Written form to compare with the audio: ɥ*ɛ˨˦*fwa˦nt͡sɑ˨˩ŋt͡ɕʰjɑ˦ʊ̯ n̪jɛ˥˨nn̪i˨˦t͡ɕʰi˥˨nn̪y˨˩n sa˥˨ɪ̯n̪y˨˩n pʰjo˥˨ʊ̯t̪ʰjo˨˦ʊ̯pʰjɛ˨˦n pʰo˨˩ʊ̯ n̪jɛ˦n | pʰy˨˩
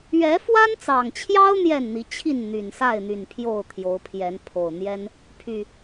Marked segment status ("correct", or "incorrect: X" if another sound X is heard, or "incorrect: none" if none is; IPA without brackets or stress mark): correct